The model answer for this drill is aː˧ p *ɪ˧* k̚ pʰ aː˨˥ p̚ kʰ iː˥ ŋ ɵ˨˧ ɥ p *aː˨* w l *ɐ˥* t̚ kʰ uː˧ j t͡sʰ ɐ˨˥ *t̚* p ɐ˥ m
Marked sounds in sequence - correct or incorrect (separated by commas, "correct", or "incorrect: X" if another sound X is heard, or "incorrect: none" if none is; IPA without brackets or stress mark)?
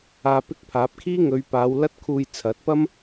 incorrect: ɪ˥, incorrect: aː˨˧, correct, correct